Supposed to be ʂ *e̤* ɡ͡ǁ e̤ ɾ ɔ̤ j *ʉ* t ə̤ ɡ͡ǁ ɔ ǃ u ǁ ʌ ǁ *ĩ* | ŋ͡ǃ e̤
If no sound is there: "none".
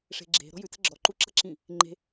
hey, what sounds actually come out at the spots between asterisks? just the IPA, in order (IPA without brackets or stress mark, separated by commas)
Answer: e̤, ʉ, ĩ